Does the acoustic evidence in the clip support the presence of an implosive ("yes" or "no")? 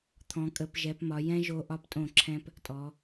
no